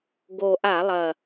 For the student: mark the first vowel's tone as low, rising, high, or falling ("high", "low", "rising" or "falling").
low